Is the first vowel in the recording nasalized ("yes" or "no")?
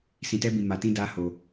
yes